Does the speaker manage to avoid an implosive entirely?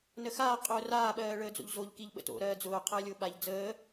no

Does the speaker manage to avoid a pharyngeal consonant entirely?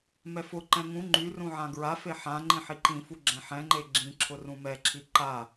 no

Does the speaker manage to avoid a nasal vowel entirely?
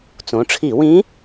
no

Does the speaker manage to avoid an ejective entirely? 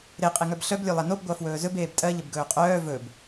no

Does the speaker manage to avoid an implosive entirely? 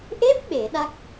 no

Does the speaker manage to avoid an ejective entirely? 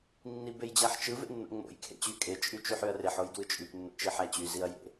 no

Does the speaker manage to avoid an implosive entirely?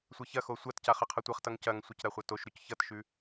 yes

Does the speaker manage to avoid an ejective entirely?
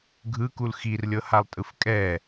no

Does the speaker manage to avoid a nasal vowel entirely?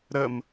yes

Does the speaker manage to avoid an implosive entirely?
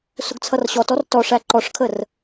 yes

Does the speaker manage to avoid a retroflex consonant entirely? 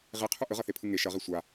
yes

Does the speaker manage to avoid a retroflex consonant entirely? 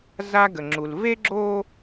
yes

